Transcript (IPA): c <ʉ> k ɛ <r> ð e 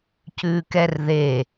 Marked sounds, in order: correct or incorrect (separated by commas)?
correct, correct